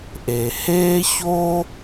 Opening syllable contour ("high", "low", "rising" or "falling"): low